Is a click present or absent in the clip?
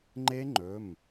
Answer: present